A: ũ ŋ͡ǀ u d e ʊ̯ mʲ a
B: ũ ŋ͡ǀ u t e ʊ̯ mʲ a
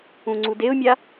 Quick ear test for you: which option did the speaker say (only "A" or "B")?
A